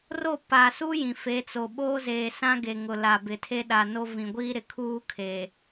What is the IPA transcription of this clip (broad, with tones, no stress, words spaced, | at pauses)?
ro˦˨pa˨su˦ jĩ˨fe˨˦t͡so˨ ɓoː˦zeː˨sã˦ɡe˨ ŋʊ˨la˨ bɪ˨tʰe˦ɗa˨ no˦vĩ˨ ɡʷiː˦ɾɪ˨ kʰuː˦kʰe˨